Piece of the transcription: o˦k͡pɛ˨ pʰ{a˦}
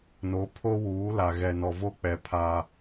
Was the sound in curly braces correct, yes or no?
yes